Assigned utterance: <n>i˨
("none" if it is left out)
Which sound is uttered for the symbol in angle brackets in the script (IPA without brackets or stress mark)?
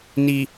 n